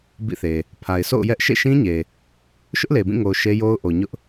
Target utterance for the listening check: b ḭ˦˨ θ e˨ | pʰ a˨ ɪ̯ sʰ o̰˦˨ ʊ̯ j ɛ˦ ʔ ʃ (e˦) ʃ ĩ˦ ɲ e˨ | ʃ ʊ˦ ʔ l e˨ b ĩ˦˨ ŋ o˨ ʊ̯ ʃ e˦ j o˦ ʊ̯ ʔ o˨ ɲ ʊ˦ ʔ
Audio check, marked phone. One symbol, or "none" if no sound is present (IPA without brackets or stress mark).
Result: ḛ˦˨